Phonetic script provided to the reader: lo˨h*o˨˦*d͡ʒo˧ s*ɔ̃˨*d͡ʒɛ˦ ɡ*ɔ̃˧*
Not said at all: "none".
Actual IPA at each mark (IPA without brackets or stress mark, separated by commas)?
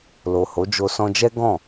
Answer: o˨˦, ɔ̃˧, ɔ̃˦˨